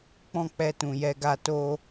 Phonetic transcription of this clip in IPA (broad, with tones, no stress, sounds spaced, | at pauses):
k͡p ɔ̃˦ k͡p ɛ˧ t ũ˨ j ɛ˧ ɡ a˧ t o˦